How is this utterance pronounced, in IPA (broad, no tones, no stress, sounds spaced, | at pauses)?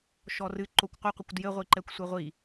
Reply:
ʃ ɔ r ɨ ǃ o kʷ qʷ ɨ qʷ ɘ kʷ d j ɘ ʁʷ i ǃ ɛ kʷ sʷ e ʁʷ i